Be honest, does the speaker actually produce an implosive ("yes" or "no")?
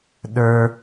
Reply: yes